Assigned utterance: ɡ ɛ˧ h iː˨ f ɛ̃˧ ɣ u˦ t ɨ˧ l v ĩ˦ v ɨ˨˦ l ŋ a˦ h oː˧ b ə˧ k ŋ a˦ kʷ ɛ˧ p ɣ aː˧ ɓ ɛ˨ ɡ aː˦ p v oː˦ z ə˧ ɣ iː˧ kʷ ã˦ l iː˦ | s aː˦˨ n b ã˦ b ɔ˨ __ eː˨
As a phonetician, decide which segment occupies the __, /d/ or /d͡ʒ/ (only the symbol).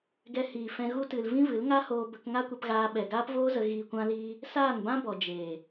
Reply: d͡ʒ